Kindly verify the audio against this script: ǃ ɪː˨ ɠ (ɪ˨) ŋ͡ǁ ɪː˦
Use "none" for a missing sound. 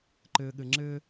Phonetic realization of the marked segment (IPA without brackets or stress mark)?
ɪ˨